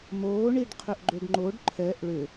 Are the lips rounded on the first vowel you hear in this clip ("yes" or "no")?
yes